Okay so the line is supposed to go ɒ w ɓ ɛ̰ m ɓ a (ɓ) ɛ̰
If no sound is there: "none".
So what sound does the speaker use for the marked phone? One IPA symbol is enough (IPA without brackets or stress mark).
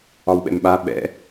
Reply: ɓ